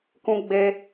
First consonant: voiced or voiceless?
voiceless